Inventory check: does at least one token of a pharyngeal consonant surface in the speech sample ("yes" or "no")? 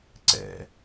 no